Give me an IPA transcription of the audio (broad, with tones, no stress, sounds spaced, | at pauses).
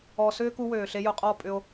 ɔ˧ s ʏː˦ k u˧ w øː˨ ɬ e˧ j ʊ˧ qʼ ɔ˦˨ pʼ ʏ˧ o̯